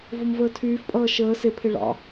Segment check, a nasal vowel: absent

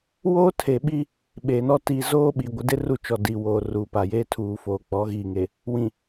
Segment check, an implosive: present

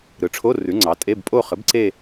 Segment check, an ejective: present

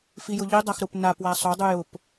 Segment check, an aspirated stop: absent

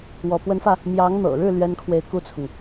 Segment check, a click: absent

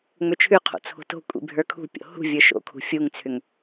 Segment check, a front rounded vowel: present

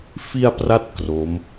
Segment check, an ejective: absent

